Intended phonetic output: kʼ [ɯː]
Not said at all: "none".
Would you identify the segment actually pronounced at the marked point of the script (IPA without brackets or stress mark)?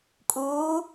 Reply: uː